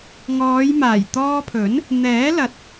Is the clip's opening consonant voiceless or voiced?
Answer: voiced